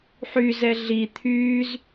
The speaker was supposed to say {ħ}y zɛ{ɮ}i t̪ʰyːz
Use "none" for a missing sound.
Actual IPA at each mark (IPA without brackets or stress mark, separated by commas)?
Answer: ħ, ɮ